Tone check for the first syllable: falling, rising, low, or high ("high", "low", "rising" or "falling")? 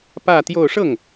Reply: falling